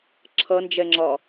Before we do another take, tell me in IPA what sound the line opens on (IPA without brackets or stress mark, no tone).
ǁʰ